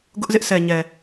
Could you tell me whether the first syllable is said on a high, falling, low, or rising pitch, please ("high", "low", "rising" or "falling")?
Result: high